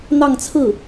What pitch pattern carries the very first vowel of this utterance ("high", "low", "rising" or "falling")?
falling